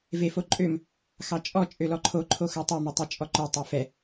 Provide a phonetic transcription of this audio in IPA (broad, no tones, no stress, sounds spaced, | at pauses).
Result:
v e f o ǃʼ ø m | x ɑ t͡ʃʼ ɔ t͡ʃʼ ø l ɔ ǃʰ o ǃʰ o x œ tˤ ø m ɛ tˤ e t͡ʃʼ ɔ ǃ œ tˤ e f ɛ